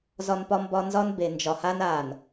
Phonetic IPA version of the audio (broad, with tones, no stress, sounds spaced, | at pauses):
z ɒ˦ n p ɒ˦ m b ɒ˦ n z ɒ˦ n b e˨ n d͡ʒ ɒ˨ h a˦ n a˨ n